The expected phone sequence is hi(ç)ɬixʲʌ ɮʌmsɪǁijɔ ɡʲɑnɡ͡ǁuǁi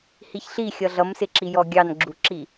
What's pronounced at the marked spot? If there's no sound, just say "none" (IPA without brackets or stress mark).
ç